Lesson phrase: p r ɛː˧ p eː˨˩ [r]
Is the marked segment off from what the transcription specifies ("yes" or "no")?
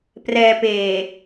yes